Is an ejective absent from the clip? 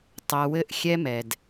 yes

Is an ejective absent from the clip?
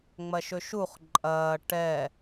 no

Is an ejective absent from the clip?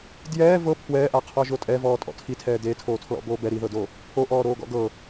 no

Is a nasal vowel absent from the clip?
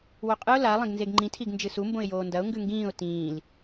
no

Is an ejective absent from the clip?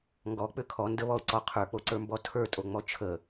no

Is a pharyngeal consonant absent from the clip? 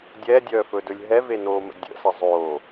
yes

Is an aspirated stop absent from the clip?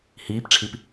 no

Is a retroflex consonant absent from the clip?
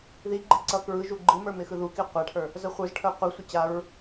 no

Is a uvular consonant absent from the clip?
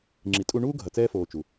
yes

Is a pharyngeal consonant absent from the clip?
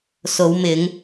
yes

